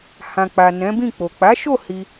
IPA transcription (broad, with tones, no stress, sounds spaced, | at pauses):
h ã˨ k͡p a˨ n ɛ̃˨˦ b ĩ˦˨ k͡p o˨ k͡p a˨˦ ʃ o˦˨ h i˧